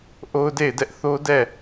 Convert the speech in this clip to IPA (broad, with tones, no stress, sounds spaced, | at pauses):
ʔ o˦ ʊ̯ d e˦˨ ɪ̯ d ɛ˦ ʔ θ o˦ d ɛ˦˨